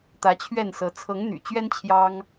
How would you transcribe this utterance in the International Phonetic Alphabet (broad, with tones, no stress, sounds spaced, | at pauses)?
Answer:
t̪ ä˨˦ t͡ɕʰ ɥ ɛ˥˨ n s ɤ˨˦ t͡sʰ ɤ˨˦ ŋ n̪ y̰˨˩ t͡ɕ ɥ ɛ˦ n t͡ɕʰ j ɑ˦ ŋ